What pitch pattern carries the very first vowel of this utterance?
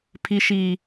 high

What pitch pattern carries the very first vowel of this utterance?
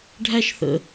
high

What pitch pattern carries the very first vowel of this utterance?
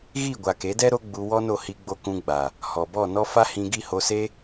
falling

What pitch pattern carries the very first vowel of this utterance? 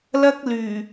high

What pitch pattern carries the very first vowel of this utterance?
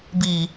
low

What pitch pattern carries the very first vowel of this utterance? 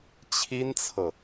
high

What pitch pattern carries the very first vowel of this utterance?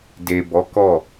low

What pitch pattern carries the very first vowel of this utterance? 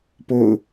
falling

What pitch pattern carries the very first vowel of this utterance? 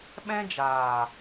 high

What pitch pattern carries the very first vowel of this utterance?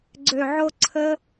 low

